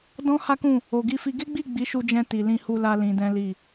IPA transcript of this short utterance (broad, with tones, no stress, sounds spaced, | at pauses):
d ɔ̃˦ h a˦ k ũ˦˨ | o˨ ɡ i˧ f i˧ ɡ e˦ ɡ͡b i˦˨ ɡ͡b i˨˦ ʃ u˧ d͡ʒ ɛ̃˧ t i˨ l ĩ˧ h u˧ l a˧ l ĩ˧ d ɛ̃˦ l i˦˨